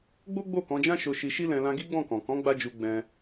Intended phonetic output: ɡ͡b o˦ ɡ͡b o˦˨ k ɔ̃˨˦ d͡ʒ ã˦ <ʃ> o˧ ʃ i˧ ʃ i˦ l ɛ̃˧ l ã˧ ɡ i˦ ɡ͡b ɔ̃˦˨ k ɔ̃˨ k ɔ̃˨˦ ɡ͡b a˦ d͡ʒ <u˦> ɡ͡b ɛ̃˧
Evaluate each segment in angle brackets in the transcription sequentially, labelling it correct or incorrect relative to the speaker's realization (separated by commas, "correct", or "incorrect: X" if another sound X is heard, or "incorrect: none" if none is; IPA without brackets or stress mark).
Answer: correct, incorrect: u˧